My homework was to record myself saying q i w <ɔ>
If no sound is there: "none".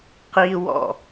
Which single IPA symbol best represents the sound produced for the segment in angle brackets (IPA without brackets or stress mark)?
ɔ̰